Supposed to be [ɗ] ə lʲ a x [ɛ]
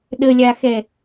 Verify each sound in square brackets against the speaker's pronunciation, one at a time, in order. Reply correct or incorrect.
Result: correct, correct

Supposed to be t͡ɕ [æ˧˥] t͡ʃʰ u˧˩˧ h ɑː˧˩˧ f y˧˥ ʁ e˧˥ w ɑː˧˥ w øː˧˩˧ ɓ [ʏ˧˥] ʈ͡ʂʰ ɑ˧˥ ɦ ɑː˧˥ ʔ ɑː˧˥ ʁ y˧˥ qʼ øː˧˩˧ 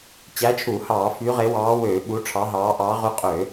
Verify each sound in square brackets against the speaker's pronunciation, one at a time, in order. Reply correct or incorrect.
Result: correct, incorrect

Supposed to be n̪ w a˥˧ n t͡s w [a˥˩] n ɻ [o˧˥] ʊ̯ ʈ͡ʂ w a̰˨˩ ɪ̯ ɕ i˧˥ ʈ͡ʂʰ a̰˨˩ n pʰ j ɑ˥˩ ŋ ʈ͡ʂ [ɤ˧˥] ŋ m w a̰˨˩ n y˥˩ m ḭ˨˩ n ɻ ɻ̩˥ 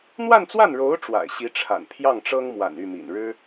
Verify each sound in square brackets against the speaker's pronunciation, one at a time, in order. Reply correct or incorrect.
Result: correct, correct, incorrect

